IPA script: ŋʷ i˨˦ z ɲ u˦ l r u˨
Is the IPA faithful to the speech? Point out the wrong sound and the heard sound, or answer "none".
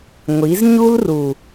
none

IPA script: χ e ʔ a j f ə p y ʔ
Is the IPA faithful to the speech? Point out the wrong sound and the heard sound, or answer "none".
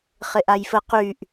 p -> q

